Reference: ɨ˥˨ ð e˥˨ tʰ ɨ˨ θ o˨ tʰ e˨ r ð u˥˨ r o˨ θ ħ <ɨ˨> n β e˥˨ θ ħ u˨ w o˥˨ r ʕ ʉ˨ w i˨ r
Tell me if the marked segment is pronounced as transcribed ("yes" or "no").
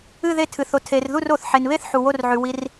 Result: no